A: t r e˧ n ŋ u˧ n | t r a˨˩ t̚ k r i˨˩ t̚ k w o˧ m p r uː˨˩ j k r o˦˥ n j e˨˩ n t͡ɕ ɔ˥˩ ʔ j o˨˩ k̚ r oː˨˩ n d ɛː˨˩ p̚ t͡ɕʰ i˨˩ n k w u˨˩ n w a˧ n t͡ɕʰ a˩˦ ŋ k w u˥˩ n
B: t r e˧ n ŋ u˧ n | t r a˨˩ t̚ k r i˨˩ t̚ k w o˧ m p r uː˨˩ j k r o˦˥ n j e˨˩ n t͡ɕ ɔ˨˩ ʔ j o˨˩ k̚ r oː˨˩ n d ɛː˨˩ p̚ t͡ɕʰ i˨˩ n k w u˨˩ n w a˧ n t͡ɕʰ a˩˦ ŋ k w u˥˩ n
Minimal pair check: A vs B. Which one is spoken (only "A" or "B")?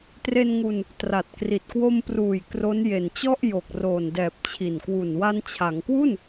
A